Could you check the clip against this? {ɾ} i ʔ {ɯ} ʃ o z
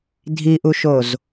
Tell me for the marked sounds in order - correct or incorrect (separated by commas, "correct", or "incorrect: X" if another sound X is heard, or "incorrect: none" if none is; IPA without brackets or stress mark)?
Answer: incorrect: dʱ, incorrect: u